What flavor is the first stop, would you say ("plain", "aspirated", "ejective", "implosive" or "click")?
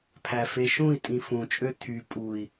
aspirated